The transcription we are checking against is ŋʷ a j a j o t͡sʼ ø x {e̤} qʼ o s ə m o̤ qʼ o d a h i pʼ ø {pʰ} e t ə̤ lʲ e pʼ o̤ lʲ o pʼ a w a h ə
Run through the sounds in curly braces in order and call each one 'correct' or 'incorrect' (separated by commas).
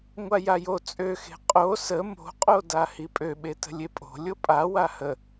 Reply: correct, incorrect